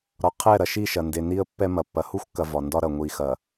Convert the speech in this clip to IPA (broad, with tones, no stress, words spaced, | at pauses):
ɾɒ˨qʰɛ˦˨ɾɐ˨ʃi˦˨ ʃɐ˨ nde˨ni˦ə̯ pːɛ˦mɐ˨pːɐ˨ hu˦xʷkːɐ˨ vɒ˨ndɒ˦ɾɐ˨ ŋʷi˨xɐ˨